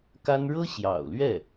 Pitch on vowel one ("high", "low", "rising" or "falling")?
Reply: high